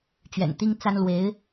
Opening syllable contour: low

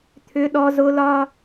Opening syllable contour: high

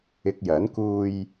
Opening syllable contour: low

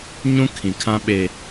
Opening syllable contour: high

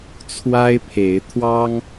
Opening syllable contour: high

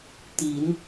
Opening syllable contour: rising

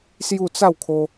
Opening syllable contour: falling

